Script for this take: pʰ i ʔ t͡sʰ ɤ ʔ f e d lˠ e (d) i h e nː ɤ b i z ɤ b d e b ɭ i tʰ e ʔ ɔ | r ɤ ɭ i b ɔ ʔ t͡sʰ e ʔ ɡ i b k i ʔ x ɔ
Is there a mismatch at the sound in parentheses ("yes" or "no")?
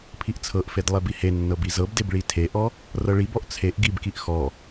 yes